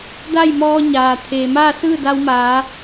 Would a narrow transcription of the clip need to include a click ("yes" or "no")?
no